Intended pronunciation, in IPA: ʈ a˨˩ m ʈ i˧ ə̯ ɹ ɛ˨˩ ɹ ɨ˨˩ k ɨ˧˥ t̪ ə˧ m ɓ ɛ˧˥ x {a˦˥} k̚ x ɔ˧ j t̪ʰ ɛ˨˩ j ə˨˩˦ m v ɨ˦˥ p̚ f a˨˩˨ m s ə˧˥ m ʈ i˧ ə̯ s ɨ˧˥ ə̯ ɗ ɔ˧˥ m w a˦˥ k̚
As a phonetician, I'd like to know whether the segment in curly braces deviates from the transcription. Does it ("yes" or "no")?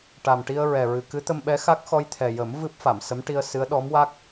no